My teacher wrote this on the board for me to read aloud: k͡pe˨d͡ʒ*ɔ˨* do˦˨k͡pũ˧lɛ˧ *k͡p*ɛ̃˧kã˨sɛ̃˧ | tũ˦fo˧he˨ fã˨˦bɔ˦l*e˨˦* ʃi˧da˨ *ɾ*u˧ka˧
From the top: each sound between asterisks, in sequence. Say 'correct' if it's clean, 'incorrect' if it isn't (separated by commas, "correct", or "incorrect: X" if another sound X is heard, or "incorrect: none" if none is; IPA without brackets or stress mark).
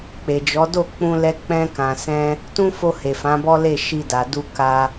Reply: incorrect: ɔ˨˦, correct, incorrect: e˦˨, incorrect: d